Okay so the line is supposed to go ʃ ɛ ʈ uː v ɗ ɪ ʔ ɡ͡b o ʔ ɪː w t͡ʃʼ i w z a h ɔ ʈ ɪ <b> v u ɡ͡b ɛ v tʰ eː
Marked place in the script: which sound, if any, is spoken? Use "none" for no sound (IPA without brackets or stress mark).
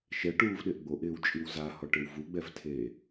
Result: w